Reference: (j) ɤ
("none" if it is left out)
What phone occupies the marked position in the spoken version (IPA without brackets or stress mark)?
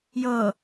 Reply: j